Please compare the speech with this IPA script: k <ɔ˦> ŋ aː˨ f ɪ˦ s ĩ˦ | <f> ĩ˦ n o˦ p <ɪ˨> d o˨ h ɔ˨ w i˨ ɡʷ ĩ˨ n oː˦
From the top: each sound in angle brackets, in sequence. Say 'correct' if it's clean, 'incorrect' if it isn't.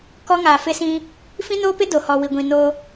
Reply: correct, correct, incorrect: ɪ˦

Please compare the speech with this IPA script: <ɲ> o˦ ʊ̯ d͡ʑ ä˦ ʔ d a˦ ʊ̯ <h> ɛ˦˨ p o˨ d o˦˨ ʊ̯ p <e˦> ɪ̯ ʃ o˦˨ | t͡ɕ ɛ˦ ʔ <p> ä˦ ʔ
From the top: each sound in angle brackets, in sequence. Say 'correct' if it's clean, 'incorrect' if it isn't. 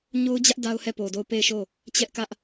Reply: correct, correct, incorrect: e˦˨, incorrect: k

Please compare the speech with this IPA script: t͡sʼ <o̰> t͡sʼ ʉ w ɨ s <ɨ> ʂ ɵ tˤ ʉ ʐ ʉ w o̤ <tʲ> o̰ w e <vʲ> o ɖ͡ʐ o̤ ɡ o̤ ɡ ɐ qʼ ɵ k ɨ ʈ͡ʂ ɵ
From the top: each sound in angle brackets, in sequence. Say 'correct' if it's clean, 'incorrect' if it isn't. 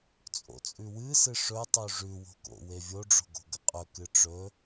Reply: correct, correct, incorrect: k, correct

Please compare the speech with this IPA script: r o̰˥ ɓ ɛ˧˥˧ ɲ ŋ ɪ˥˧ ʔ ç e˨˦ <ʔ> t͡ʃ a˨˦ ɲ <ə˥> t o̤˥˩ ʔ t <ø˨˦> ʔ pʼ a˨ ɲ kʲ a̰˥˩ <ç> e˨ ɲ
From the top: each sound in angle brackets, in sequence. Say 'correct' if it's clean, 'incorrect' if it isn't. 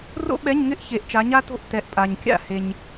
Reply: correct, incorrect: a˥, incorrect: ɛ˨˦, incorrect: h

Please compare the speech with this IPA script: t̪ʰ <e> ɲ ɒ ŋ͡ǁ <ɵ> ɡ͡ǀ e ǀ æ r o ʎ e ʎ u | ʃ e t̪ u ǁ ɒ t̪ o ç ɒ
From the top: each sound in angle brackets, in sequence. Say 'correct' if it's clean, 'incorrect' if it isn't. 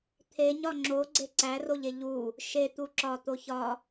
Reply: correct, incorrect: o

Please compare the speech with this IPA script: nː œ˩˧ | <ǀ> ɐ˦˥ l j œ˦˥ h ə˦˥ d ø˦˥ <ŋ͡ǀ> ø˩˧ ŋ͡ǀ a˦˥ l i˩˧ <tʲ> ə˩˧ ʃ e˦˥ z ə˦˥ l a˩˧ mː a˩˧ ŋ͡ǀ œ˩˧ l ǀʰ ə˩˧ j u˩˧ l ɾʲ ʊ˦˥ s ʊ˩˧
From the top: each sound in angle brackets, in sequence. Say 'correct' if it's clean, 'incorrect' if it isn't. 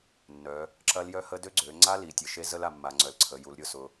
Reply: incorrect: ǁ, incorrect: ɡ͡ǀ, correct

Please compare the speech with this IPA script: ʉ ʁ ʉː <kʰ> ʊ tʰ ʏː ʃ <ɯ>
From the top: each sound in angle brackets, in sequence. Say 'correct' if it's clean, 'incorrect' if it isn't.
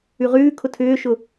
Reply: correct, incorrect: ʊ

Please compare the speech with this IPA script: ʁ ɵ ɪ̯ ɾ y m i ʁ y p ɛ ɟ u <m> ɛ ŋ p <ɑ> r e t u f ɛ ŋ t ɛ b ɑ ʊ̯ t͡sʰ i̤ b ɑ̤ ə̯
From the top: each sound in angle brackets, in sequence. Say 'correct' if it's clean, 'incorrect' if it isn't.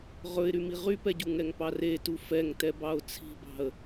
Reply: incorrect: ŋ, correct

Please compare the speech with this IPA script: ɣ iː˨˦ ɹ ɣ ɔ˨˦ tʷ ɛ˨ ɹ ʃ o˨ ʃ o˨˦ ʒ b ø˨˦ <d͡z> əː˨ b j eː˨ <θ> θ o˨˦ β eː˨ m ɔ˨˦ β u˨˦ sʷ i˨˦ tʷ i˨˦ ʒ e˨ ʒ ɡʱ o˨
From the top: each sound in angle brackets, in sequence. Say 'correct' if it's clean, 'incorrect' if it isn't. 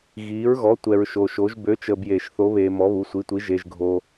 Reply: incorrect: t͡ʃ, incorrect: ʃ

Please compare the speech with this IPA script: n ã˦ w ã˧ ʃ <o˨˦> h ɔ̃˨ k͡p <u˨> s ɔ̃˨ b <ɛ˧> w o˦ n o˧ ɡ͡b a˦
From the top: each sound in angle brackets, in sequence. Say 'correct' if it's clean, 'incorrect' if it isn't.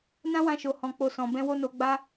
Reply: incorrect: o˨, incorrect: o˨, incorrect: ɛ̃˧

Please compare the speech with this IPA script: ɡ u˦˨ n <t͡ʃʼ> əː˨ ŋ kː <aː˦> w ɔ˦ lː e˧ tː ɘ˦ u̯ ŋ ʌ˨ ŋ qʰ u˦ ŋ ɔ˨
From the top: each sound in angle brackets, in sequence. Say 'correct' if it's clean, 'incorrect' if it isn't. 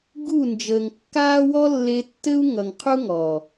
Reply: incorrect: d͡ʒ, correct

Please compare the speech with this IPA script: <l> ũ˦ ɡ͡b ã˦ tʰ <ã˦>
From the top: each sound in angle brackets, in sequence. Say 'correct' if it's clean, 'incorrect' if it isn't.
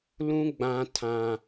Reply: correct, correct

